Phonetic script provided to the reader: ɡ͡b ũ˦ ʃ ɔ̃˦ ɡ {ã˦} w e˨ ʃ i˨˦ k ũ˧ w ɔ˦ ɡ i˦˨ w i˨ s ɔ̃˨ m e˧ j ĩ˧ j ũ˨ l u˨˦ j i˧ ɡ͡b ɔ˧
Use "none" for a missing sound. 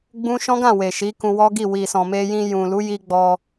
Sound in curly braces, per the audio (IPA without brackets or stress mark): ã˦˨